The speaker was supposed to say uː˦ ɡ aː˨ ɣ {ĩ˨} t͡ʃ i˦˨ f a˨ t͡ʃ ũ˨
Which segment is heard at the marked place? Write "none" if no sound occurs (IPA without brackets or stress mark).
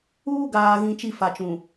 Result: ĩ˨